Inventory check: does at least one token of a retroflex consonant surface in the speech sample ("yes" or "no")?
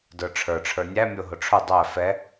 yes